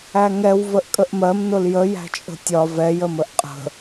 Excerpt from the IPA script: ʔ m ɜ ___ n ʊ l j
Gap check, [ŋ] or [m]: m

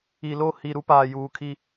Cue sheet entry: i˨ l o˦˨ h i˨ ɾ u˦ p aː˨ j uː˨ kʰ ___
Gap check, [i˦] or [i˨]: i˦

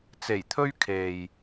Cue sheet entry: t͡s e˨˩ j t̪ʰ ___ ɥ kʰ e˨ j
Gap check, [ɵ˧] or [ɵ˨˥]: ɵ˧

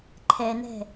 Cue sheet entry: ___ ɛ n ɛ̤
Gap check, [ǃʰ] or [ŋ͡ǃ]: ǃʰ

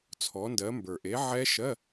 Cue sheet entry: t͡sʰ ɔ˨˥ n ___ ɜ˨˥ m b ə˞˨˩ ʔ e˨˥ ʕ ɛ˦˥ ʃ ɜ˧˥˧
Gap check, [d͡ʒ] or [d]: d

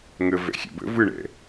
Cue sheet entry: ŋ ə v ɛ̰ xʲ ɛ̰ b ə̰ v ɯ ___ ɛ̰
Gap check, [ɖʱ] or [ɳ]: ɳ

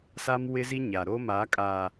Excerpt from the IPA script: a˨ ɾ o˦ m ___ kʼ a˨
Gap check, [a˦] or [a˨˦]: a˨˦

